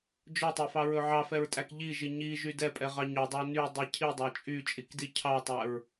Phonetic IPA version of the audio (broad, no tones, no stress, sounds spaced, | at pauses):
d͡ʒ ɵ tˤ ɛ f ɑ ɹ ɵ ʕ ɑ f ɛ ɹ tʼ æ k ʎ i ʒ i ɲ i ʒ y d ɛ pʼ ɛ ʁ ɑ ɲ ɵ dˤ ɑ n y dˤ i cʰ i dˤ æ t͡ʃʼ y t͡ʃʼ i k d i cʰ ɑ tˤ æ ɹ